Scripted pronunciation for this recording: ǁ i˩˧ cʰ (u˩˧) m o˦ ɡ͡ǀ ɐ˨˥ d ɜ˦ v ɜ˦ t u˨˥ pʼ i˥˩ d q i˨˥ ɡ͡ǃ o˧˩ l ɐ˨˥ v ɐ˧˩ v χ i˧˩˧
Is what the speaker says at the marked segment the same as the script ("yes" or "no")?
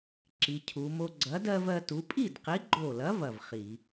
yes